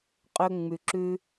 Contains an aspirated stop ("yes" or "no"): no